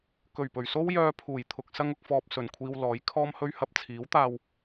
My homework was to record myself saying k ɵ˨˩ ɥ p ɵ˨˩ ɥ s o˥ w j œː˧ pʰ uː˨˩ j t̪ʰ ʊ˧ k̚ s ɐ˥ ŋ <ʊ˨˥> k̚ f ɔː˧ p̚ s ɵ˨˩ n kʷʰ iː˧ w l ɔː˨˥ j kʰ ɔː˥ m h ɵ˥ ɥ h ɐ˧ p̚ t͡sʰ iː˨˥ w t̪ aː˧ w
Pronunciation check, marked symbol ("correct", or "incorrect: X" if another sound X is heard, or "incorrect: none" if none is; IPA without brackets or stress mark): incorrect: ʊ˧